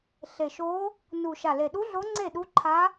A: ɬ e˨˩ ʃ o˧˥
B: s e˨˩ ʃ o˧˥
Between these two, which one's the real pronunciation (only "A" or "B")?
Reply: A